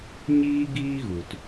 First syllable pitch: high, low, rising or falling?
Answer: high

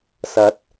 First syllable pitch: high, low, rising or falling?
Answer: rising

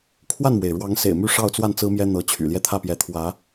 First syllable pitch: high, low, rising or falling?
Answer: falling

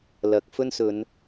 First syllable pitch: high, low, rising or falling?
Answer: rising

